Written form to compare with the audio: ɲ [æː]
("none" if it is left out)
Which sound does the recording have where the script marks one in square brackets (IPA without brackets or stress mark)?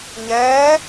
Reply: ɛː